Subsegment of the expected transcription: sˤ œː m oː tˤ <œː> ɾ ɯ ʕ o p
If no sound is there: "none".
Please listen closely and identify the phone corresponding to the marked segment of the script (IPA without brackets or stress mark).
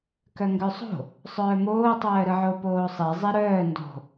œː